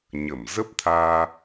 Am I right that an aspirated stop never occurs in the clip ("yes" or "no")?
no